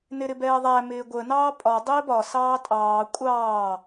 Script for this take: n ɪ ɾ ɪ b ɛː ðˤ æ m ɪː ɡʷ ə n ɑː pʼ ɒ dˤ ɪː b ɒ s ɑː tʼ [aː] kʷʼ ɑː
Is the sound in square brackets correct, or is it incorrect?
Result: incorrect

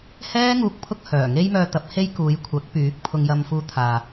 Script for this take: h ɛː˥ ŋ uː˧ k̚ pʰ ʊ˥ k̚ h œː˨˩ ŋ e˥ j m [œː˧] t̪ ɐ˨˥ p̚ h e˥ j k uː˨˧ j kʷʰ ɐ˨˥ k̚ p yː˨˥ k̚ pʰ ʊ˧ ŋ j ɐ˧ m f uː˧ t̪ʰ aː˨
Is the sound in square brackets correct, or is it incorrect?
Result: correct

